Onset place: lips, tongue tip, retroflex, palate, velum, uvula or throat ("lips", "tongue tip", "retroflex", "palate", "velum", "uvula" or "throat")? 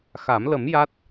velum